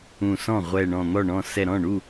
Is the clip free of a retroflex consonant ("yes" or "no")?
no